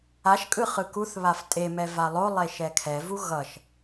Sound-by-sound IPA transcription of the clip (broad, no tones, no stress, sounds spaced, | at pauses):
a ʃ kʼ ɯ χ ɯ k u θ β a f tʼ e m ɛ v a lˠ o lˠ e ʃ ɛ kʰ ɛ v u ɣ ʌ ʃ